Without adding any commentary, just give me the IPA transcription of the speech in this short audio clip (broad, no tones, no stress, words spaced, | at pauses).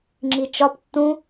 ŋ͡ǁit͡ʃɒp tːũ